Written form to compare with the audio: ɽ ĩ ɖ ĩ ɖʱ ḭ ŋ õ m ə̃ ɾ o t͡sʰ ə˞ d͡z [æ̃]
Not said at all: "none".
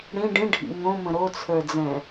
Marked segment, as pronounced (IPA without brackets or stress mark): ɛ̃